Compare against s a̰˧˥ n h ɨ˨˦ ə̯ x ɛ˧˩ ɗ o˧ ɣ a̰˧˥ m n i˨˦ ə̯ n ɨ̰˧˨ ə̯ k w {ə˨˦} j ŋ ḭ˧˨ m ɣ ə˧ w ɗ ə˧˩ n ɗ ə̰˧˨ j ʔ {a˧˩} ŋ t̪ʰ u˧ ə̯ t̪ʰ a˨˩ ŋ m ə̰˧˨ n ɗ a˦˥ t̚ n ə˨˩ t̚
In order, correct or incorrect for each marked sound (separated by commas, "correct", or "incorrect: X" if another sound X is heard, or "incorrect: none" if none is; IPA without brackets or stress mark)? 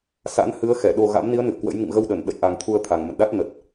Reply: incorrect: ə̰˧˥, incorrect: a˨˩